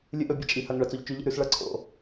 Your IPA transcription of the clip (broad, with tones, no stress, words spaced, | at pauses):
lʲɨ˥ʔɵ˧˥bʲe˥ t͡ʃʼi˧˥ hɐ˧˥˧ŋɭɐ˧˥t͡so˧˥ʎ t͡ʃʉ˧˥ʎḛ˥ɾʉ˥s ɭɐ˧˥ǀʰo̰˧˥